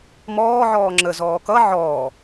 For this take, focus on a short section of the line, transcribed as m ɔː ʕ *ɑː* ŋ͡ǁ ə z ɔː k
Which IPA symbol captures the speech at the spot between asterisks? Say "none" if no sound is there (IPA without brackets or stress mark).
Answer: ɔː